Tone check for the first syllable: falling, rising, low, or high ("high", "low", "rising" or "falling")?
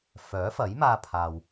rising